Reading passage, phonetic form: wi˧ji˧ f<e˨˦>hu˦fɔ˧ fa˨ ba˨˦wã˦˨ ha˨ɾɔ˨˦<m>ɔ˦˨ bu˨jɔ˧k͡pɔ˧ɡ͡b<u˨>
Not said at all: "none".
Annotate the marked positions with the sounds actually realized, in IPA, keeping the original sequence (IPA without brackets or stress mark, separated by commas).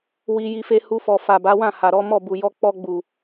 e˦, m, u˨